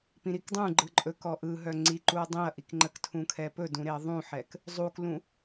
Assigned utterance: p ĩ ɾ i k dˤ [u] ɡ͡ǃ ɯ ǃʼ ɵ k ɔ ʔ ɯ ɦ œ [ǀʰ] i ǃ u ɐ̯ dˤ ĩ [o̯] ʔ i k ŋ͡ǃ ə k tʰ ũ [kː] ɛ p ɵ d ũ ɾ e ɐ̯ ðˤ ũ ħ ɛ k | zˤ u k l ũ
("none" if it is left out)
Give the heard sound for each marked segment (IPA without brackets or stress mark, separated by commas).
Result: ũ, ŋ͡ǀ, ɐ̯, kʰ